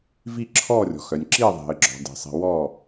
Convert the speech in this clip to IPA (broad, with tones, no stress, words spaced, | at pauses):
vi˧˩ ǁʰɔ˧˩rʲɔ̤˩x œ˩nʲǁi˧˩ðˤi̤˩ə̯ɡ͡ǁɔ̤˩ di̤˩ sˤi̤˩wɔ˧˩